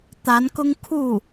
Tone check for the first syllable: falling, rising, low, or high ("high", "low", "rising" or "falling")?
rising